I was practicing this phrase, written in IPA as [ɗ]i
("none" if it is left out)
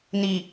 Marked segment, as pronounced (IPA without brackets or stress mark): n